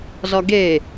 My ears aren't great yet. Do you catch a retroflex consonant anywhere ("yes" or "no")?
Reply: no